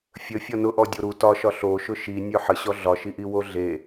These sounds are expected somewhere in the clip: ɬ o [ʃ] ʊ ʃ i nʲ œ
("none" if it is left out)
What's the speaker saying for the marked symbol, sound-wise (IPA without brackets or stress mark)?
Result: ʃ